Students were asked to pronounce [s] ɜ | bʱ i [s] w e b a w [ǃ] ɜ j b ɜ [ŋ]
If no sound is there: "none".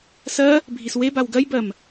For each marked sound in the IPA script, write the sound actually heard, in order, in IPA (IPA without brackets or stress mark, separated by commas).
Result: s, s, ɡ, m